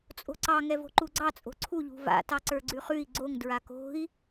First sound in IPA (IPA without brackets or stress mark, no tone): t͡sʼ